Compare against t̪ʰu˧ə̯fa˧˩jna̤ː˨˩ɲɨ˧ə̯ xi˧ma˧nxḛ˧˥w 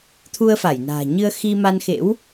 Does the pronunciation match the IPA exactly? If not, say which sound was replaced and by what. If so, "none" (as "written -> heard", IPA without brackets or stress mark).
none